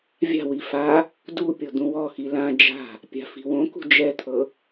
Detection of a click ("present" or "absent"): absent